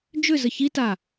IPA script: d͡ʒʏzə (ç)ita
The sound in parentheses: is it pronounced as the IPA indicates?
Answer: yes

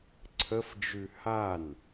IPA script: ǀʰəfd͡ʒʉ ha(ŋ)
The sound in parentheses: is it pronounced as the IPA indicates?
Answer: no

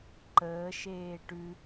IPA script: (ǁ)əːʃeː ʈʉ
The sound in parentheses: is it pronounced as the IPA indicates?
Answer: no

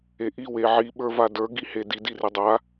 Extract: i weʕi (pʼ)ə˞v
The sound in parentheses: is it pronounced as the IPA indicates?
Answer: no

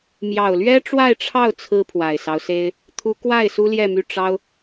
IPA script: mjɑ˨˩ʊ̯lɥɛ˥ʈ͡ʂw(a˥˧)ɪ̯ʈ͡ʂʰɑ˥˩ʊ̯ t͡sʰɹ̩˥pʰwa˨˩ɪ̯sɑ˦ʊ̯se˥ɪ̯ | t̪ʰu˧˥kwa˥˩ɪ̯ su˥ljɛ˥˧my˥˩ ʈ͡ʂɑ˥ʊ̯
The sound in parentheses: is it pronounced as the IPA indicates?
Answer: yes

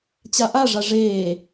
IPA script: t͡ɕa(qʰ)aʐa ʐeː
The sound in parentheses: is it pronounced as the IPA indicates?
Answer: no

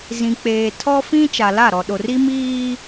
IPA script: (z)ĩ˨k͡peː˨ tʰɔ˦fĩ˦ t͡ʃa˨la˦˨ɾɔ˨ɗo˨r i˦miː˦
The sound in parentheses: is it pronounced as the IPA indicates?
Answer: yes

